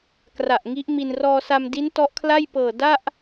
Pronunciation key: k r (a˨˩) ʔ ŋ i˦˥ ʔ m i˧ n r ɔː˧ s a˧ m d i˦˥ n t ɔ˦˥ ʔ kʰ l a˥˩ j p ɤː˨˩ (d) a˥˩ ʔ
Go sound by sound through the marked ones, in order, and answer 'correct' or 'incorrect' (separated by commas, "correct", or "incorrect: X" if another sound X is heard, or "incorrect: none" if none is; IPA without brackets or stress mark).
correct, correct